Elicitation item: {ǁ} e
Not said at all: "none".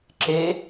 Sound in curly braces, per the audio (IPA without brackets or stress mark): ǁ